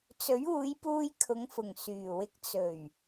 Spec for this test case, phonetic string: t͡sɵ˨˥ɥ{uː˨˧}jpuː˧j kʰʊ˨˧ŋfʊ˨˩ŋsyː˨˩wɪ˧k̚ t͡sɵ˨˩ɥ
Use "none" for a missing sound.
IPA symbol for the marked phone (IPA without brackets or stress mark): uː˨˧